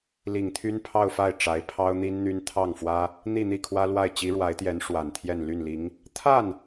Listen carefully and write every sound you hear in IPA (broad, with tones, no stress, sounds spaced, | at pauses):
l i˨˩ ŋ t̪ʰ y˥ n pʰ ɑ˥˧ ʊ̯ f a˥˩ ɪ̯ ʈ͡ʂ a˧˥ ɪ̯ pʰ ɑ˥ ʊ̯ n̪ i˥ n n̪ y˥ n t̪ʰ ɑ˥˩ ŋ f w ä˥ | n̪ i˥˧ n̪ i˥˩ kʰ w ä˥ l w a˥˩ ɪ̯ t͡ɕ i˧˥ ɻ w a˧˥ ɪ̯ t̪ j ɛ˧˥ n ʂ w a˨˩ n t̪ʰ j ɛ˥˧ n l y˥˩ n l i˧˥ ŋ | t̪ʰ a˥˩ n